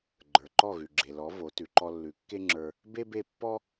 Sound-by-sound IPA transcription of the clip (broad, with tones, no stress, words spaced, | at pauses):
ɡ͡ǃə˞˩ǃɔ˥˩ɣʉ˩ ɡ͡ǁe˩lɔ˩˥ vo˩˥ tʉ˩ ǃɔ˧lːʉ˩˥kːe˥ŋ͡ǁə˞˧ | be˥be˥˩ pːɔ˥